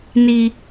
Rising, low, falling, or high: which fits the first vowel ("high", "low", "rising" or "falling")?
high